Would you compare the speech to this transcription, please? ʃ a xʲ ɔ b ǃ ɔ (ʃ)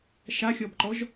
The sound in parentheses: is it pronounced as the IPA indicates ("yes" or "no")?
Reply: no